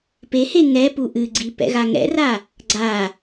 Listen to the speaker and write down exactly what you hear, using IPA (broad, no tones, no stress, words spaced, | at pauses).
pehe ŋɛpu ʔɨɡ͡ǀi pɛ̰ɣaŋɛ̰ra | ɡ͡ǀa